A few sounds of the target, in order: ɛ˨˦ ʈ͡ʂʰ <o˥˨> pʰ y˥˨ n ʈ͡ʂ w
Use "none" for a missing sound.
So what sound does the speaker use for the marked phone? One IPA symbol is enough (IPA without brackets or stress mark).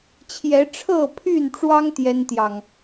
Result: ɤ˥˨